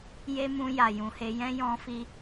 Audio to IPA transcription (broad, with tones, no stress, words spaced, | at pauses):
je˦mũ˧ ja˨jũ˨he˧ jɛ̃˧ jɔ̃˧fi˧